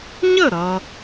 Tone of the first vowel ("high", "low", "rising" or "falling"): falling